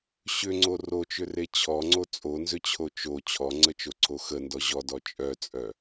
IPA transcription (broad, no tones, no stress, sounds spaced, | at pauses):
ɕ ʏ ŋ͡ǀ o r o t͡ʃ ʏ r e t͡ɕʰ ɔ ŋ͡ǀ o t͡sʼ o n z ʏ t͡ɕʰ o t͡ʃ o t͡ɕʰ ɔ ŋ͡ǀ ə t͡ʃ o ǀʰ o x ə n d ɔ ʑ ɔ d ɔ t͡ʃʼ œ t͡sʼ œ